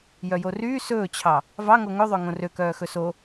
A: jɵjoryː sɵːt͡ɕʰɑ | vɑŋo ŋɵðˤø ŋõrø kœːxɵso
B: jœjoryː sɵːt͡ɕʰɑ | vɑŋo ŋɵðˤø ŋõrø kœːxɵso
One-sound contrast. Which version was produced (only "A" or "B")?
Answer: B